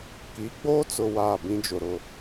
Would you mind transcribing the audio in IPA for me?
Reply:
k i˨˦ ɡ͡b oː˦ t͡s ʊ˨ w aː˦˨ b ĩ˦ d͡ʒ ʊ˨ ɾ ʊ˦˨

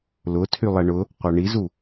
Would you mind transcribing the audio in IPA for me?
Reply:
l ʊ tʰ y lˠ ɛ ɳ ʊ | qʷ a ɳ i z u

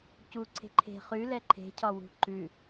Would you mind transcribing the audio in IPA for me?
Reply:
c u ǀʰ e̤ ǃʰ e̤ χ ʉ l ɛ ǃʰ e̤ cʰ ɒ w ṳ ǃ ʉ

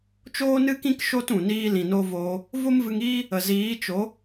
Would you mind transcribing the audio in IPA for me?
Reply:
t͡ʃ oː˦ n ɨ˦ k ĩ˦ k ʃ o˦ t ũ˨ n iː˦ l ĩ˨ n o˧ v oː˧ | v o˦ m v ɨ˧ ŋ iː˦ | ə˨ z iː˨˦ t͡ʃ o˨˦

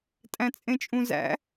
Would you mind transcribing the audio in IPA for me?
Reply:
tʼ æ̃ t͡sʼ ẽ t͡ʃʼ ũ z æ̰

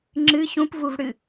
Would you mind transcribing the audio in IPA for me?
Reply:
ŋ͡ǁ ɨ ɕ ũ p v u v ɽ ɨ

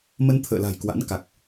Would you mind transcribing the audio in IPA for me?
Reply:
m ə˧ n t̪ʰ ə̰ː˧˨ l a̤˨˩ j k w a̰˧˥ n k a˨˩ k̚

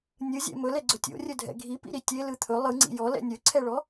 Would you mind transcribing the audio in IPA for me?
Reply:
nʲ ɯ zʲ ɛ̰ m ɵ l ɛ ɡ͡ǀ ɵ tʲ o̰ rʲ ɵ dʱ ɛ̰ ɡʱ i p ḭ ɾ i tʲ e l ɯ t̪ʰ ɵ lˠ ɯ ŋ͡ǀ ḭ j ɔ l ɛ̰ nʲ ɵ ǀʰ ɛ ɭ ɔ

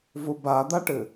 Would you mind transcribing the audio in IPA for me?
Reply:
v ʊ b a d̪ a ʈ ɘ

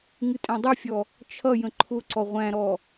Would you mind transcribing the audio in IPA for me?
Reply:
ŋ ɨ tʼ æ̃ dˤ i fʲ ɔ | t͡ʃʰ ʌ j ə̃ ǃʰ ʊ ǀ ɔ ʁʷ æ̃ ɾ ɔ

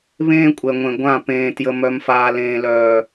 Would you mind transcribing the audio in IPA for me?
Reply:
β ẽː˦ kʷʼ ɛ˨ ŋʷ ẽ˨ ɡʷ ã˦˨ p ẽː˨ t j ə˨ m œ˨ m f aː˨ l ẽː˨ l œː˨

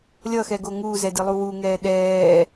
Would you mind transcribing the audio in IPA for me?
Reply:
lʲ ʌ x ɛ ɡ o ŋ uː z ɛ d i lˠ u w u ŋ ɛː ɗ ɛː

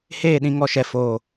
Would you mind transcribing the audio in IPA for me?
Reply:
h eː˦˨ ɗ ĩ˨ ŋ ɔ˦˨ ʃ ɛ˨ f oː˨

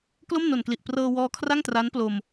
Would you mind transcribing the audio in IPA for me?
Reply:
k l o˥˩ m n o˨˩ n k l i˨˩ ʔ p r ɤː˧ w ɔː˦˥ kʰ r a˥˩ ŋ t r a˦˥ n p l o˧ m

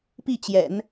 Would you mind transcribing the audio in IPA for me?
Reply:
p i˥˩ t͡ɕ j ɛ̰˨˩˦ n

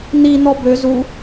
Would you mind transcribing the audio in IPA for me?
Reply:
n̪ i n̪ ɔ b ø z u

